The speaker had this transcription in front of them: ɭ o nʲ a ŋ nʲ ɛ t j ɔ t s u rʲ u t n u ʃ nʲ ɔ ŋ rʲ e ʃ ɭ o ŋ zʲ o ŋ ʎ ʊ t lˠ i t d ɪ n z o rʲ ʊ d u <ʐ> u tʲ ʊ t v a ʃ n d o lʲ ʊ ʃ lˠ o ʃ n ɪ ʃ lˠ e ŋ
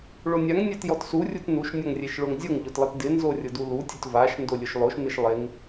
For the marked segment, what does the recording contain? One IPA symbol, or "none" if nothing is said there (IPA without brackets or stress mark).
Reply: l